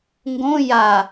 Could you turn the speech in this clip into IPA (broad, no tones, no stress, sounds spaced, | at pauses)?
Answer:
ŋ ɡ õ j a